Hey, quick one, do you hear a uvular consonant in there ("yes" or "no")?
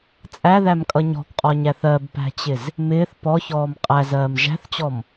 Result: yes